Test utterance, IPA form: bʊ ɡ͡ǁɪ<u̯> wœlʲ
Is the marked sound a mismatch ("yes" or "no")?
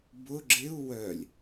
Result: no